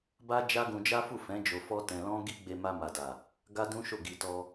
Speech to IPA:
b a˦ d͡ʒ a˦ ɡ ũ˧ d͡ʒ a˦ f u˦˨ f ɛ̃˨˦ d͡ʒ o˧ f ɔ˦ t ɛ̃˧ l ɔ̃˦ ɡ i˦ ɡ͡b e˧ m a˧ m a˨ d a˨ | ɡ a˦ d ũ˦ ʃ o˦˨ ɡ i˧ t ɔ˧

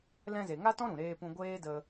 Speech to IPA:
l ɛ̃˧ z e˨ ŋ a˦ t ɔ̃˦ ɾ ũ˨ ɾ eː˧ p ũ˧ ɡʷ eː˦ d ə˧

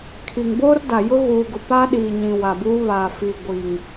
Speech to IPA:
kʰ i˨ ŋ b oː˦ r d a˨ j ʊ˦ ɣ uː˨ ɡ ʊ˨ p a˦ ɗ iː˨ ɲ ĩ˨ w a˨ b uː˦ β aː˨ f i˨ ɡʷ iː˨ ŋ

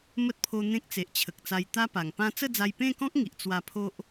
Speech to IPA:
m ə˦ t̚ pʰ o˧ n̪ ẽ˦ k̚ t͡s e˨ ʔ t͡ɕʰ ə˨ k̚ t͡s a˧ j t̪ a˦ p a˨˩ ŋ p ã˦ t͡s ə˥˧ d͡z a˧ j p ẽ˥˧ k ɔ̃˦ k̚ ŋ i˨ ʔ t͡s w a˧ pʰ o˦ ʔ

